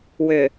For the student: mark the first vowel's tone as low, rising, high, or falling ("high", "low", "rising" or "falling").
low